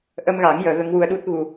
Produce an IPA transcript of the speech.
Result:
ʔ ə˧ m ɣ a˨˩˦ ŋ j əː˨˩˦ ɣ ə˧˥ ŋ w u˧ ə̯ ɗ u˦˥ t̚ ɣ u˧

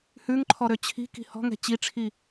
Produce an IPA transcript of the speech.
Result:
h ʉ ŋ ǃʰ ɔ ɾ ø t͡ɕʰ i̤ k i̤ h ɔ̤ ŋ ɛ̤ t͡ɕ i ʈ͡ʂʰ i

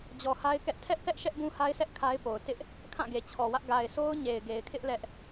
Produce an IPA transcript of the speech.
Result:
d͡ʑ ɔ˨ h a˦ ɪ̯ k ɛ˦ ʔ tʰ ɛ˦ ʔ θ ɛ˦ ʔ ʃ ɛ˦ ʔ b ũ˦ h a˦ ɪ̯ sʰ ɛ˦ ʔ kʰ a˦ ɪ̯ p o˨ ʊ̯ t ɪ˦ ʔ | kʰ ã˦˨ ɡ e˨ t͡ɕʰ ɔ˨ w ä˦ ʔ ɡ a˨ ɪ̯ sʰ o˦ ʊ̯ ɲ e˨ ɪ̯ ɡ e˨ ɪ̯ kʰ ɪ˦ ʔ l ɛ˦ ʔ

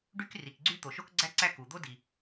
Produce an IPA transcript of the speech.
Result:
ɖ y˥ k r i˩ k ɡ͡ǀ y˥ t̪ o˩ ʃ o˥ k ɡ͡ǀ æ˥ ǀ æ˥ k u˩ d̪ o˥ d i˩

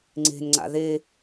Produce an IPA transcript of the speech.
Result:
ŋ͡ǀ e̤ n ŋ͡ǀ a̰ ð e

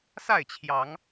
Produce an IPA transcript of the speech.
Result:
s a˥˨ ɪ̯ t͡ɕʰ j ɑ˨˦ ŋ

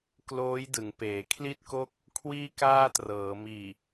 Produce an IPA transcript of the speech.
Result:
k l oː˦˥ j d ɯ˩˦ ŋ p eː˩˦ kʰ l i˥˩ t̚ k o˥˩ k̚ | kʰ w iː˥˩ k aː˥˩ t r ɤː˩˦ m iː˨˩

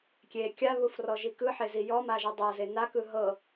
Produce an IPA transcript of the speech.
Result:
kʲ e kʲ a β u f r ɔ ʒ i k ɯ ħ e z i j ɔ m a ʒ i dˤ ɤ z e n a k ɯ ɦ ɤ

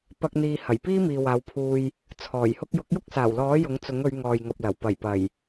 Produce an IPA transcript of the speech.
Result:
p ɐ˧ k̚ n̪ iː˨ h ɐ˨˩ j p iː˥ m iː˨ w aː˨˧ w pʰ uː˧ j | t͡sʰ ɔː˨˩ j h ʊ˥ k̚ j ʊ˨˥ k̚ j ʊ˥ k̚ s aː˨˩ w l ɔː˨˥ j ʊ˨˥ ŋ t͡s ʊ˨˥ ŋ ɵ˨˧ ɥ ŋ ɔː˨ j ŋ ɐ˨ p̚ l ɐ˨˩ w p ɐ˨˩ j p ɐ˨˩ j

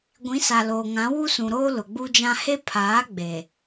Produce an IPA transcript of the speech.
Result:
ɡʷ ĩ˨˦ s a˨ l oː˨ ŋ ã˨˦ w u˦ s ũ˨ ɾ oː˦ l ʊ˨ ɡ͡b u˦ d͡ʒ ã˦ h e˦ pʰ aː˨˦ ɡ͡b e˨

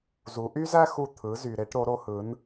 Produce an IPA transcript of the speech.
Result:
z u˩˧ ʔ y˥ z æ˥ x u˧ t̪ʰ ɯ˩˧ z y˩ ɾ e˩˧ ʈ ɾ o˩˧ ɾ o˩˧ h ɯ˩˧ n

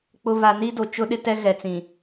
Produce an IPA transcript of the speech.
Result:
k͡p ʊ˨ β a˨ n i˦ d o˨ t͡ʃ ʊ˦ ɗ ɪ˦ t ɛ˦ ɣ ɛ˨ t͡s ĩ˨

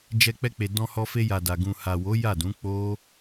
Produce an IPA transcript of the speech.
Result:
d͡ʒ ɛ˧ k͡p ɛ˧ k͡p e˨ d ɔ̃˧ h ɔ˧ f e˧ j a˨ d a˨ ɡ ũ˨ h a˨ w o˨˦ j a˦˨ d ũ˨˦ k͡p o˦

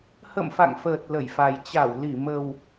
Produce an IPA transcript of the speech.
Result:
h ə̰˧˨ m f a̰˧˨ ŋ f əː˨˩ t̚ l ə˧˩ j f a˨˩ j t͡ɕ a˧˩ w l i˧˩ m ə˨˩ w

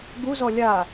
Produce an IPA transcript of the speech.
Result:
ɡ u z ɔ lʲ a

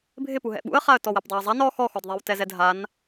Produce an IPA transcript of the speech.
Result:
bʱ ɪ p u ɦ ɛ̰ ɓ ṵ ə̯ χ a ə̯ t ɔ w ɛ p dˤ u ə̯ zˤ a n ɔ x ɔ x ɔ d ðˤ ɛ w t ɛ z ɛ dʱ a n

